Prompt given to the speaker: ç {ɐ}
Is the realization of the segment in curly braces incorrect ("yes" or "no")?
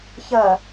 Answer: no